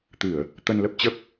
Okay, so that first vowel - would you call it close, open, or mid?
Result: close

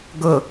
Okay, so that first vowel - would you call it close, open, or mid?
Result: close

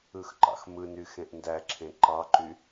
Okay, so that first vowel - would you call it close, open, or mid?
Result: close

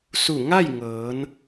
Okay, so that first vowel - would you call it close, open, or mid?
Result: close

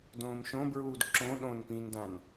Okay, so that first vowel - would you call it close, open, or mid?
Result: mid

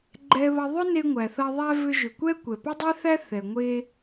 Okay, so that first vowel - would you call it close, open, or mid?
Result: mid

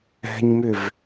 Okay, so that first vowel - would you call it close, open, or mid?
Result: mid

